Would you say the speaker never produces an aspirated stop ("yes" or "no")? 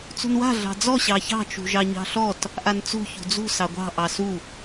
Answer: yes